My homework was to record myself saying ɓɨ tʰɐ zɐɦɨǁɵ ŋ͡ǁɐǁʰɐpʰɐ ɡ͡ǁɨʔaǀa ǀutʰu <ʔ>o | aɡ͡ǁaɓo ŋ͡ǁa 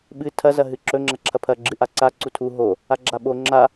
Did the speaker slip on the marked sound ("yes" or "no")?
yes